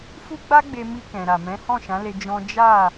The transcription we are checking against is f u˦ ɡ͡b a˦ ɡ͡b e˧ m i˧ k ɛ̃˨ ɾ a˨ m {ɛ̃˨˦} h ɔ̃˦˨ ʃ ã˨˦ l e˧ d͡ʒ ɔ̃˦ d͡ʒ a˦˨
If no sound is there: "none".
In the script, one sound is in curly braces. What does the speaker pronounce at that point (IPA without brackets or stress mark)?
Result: ɛ̃˨˦